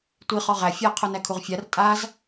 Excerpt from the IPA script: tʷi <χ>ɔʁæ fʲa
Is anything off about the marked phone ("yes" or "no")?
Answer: no